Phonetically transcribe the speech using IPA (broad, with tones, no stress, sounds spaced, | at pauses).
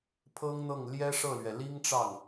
pʰ ɤ˥ ŋ n̪ ɤ˥˩ ŋ l j ɛ˥ ʂ ɤ˥˩ l ɥ ɛ˩ l i˥ ŋ ʈ͡ʂ ɑ˥˩ ŋ